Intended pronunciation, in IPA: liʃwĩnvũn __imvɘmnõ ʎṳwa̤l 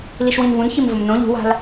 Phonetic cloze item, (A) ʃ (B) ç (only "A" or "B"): B